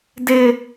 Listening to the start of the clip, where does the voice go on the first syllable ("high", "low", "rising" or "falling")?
high